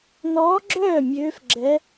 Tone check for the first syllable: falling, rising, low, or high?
rising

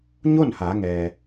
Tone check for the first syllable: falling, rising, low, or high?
falling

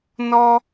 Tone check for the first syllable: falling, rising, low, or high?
high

